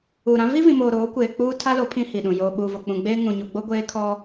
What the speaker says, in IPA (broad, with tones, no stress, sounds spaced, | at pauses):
uː˨ ɾ ã˦ v i˦ v ĩ˨ m oː˨ ɾ oː˨˦ kʷ eː˨ k͡p uː˦ tʰ a˦ l o˨˦ pʰ ĩ˦ h i˨ ɗ ũ˨ j oː˨ ɓ uː˨ v o˨ k͡p ũ˨ ɡ͡b eː˦ ŋ ũ˨ ɲ u˨ ɡ͡b o˦ ɡʷ eː˦ kʰ ɔ˦